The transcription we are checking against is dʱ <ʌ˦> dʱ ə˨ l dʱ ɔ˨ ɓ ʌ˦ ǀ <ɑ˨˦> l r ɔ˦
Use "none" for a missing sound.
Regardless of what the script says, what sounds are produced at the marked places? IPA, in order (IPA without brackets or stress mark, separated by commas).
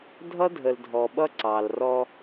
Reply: ʌ˦, ɑ˨